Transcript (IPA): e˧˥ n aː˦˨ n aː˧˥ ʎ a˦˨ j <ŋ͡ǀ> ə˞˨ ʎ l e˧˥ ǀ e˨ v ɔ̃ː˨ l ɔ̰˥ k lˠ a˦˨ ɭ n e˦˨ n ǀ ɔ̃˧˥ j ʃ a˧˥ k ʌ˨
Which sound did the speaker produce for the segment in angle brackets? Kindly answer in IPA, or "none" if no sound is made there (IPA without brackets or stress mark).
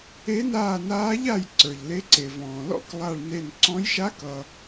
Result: ǀ